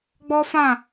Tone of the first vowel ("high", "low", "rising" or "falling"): high